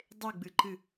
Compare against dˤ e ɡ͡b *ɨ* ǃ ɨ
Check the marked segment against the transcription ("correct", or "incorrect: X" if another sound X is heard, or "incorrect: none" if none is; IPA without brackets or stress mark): correct